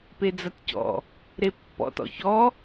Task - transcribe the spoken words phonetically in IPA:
p e d͡z ɐ t c ɔ̰ | ɾ e pː ɔ̰ t ɔ̰ ç ɔ

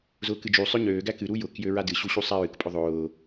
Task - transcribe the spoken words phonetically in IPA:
z ʊː k ɨ d͡ʒ u sˤ ø ɲ øː ɡ æ k ɨ ɾ u j ʊ k j ø ɹ a d ɨ ɕ u ɕ u sˤ æ ɹ ɨ k pʼ ʊ ðˤ ʊː

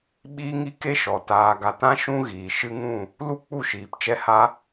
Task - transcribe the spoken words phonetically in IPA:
ɓ iː˦ ŋ i˦ k e˦ ʃ ɔ˨ t aː˨ ɡ a˨ t ã˦ ʃ ũ˦ ɣ iː˨ ʃ ɨ˧ ŋ ũ˦˨ | l u˦ k͡p u˦˨ ʃ iː˨ p t͡ʃ ɛ˦ h a˦

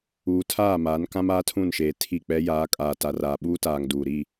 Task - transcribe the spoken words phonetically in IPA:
uː˨ tʰ aː˦˨ m aː˨˦ n k ã˦ m aː˦ tʰ ũ˦˨ n ʃ eː˨ tʰ i˦˨ k͡p ɛ˦ j aː˨˦ kʼ aː˨ t a˨ r aː˨ ɓ uː˦ t aː˨ ŋ d uː˨ ɾ i˦˨

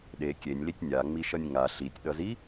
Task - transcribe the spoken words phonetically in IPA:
ɗ e kʲ e nʲ l i tʲ nʲ a ŋ͡m i ʃ ʌ nʲ ŋ a ɬ i tʲ ɗ ʌ z i

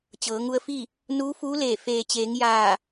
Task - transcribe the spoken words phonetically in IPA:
t͡ɕ ɤː˩˧ ŋ u˧ ə̯ f i˥˨ | n uː˧˥ f uː˧˥ l eː˧˩ f eː˩ t͡ɕ eː˩˧ ŋ j aː˧˩

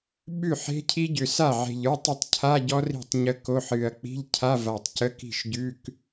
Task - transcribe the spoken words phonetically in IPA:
ɓ ʉ˥˩ ħ e̤˦˥ cʰ i˦˥ ɟ ʏ˨˩ s a˥˩ ʕ e̤˨˩ ʎ ə˞˧˥˧ tˤ ə˥˩ tˤ cʰ a˧˥˧ ɟ ɔ˦˥ r i̤˥˩ tˤ ɲ ə˦˥ k o˧˥˧ ħ ɨ˨˩ ɐ̯ k͡p i̤˧˥˧ ʎ cʰ a˧˥˧ v a˨˩ tˤ c ə˧˥˧ k i̤˥˩ ʃ ɟ ʉ˧˥˧ k

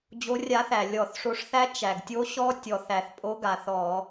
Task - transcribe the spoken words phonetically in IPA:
d͡ʑ o˨˦ rʲ a˨˦ θ æ˩ lʲ ɔ˧˩˧ θ ʂ o˨˦ ʂ θ æ˦˥ t͡ʃ æ˩ ɡ tʲ o˦˥ ɕ ɔ˦˥ tʲ ɔ˩ θ æ˩ θ pʼ o˨˦ ɡ a˩ θ ɔ˧˩˧

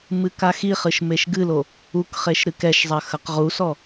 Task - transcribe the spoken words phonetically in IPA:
m ɨ k a x i χ ɨ ʃ m e ʃ ɡ ɨ l o | u k χ e ʃ ɾ ɨ k ɛ ʃ zˤ ɐ x ɐ q ʁ u s ɔ

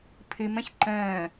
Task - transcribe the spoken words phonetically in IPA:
pʰ ɨ m ə̃ ç ǃ ə̃ː

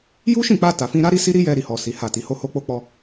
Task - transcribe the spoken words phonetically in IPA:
j u˦ ʃ ĩ˦˨ k͡p a˧ t a˨ f ĩ˧ ɾ a˦ ɾ i˦ s i˦ ɾ i˦ j ɛ˧ ɾ i˧ h ɔ˨ s i˨˦ h a˦˨ t i˨˦ h o˦ h o˦ k͡p o˦ k͡p ɔ˦

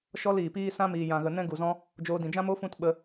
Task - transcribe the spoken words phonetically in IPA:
ʃ ɔ˦ l iː˨ p iː˦ s ã˦ m iː˨ j ã˨ ɣ ə˨ n ɛ̃˦ ɡ u˨ z ɔ̃˦ | d͡ʒ oː˧ d ĩ˨ d͡ʒ ã˦ m o˦ f ũ˦ t ɓ ə˧

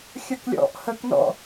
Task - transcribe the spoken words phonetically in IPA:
xʲ ʌ k lʲ ɔ̰ ʔ h ə k n ɔ̰

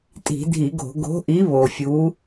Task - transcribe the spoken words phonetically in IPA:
tʼ i̤˧˩˧ dʱ i˧˩˧ ɡ o̤˧˩˧ ɡ o̤˨˥ ʔ i˨˥ β o˨˩ fʲ u˨˥

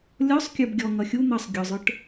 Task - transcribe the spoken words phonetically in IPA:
lʲ ɔ sˤ kʲ ə˞ b ɡʲ ɔ ŋ ʌ xʲ u n̪ ʌ sˤ ɡʲ ʊ zˤ ə˞ ʈ

